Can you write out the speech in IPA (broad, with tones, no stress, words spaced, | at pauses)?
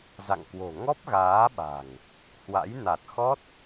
za̰˧˨ŋkwo̤˨˩ ŋɔ˦˥p̚ɣaː˨˦ɓa̤˨˩ŋ | hwa̰˧˥j na˨˩t̚xɔ˦˥t̚